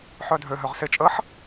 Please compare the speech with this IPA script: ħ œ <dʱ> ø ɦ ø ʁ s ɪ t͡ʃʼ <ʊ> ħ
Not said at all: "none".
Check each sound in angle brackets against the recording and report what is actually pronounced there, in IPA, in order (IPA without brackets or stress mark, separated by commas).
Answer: dʱ, ə